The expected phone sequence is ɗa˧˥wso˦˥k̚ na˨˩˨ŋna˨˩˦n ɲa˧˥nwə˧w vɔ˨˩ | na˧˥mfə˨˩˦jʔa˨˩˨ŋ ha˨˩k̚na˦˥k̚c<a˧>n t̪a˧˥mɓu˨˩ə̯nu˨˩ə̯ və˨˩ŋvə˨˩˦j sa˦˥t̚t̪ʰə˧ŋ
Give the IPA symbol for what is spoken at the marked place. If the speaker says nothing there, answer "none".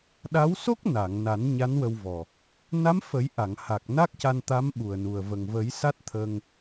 a˧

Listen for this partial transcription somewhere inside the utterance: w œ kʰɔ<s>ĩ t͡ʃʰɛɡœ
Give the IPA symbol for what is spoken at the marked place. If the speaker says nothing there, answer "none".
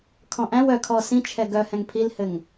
s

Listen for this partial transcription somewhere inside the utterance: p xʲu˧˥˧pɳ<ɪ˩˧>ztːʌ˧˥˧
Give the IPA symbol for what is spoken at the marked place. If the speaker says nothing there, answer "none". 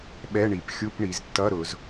i˩˧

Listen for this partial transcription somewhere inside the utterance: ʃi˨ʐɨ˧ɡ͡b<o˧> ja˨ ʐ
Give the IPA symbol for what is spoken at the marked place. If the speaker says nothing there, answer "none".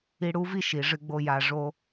o˧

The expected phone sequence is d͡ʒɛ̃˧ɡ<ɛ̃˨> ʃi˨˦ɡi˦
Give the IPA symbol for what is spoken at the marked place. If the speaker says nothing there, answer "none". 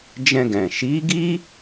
ɛ̃˨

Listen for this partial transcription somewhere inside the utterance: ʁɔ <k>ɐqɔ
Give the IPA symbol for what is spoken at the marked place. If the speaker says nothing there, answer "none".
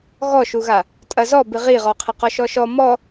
qʰ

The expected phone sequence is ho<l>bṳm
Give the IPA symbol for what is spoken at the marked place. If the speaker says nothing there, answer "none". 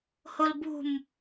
l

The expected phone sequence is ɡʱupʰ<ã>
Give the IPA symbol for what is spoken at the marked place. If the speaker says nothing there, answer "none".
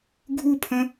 ə̃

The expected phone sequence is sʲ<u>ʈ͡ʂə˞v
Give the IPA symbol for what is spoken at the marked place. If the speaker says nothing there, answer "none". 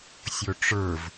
o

